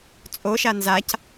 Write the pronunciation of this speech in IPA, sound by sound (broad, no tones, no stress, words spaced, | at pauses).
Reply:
t͡sʼoʃa nzac